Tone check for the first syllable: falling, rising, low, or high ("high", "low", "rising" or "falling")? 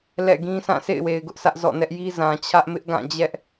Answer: falling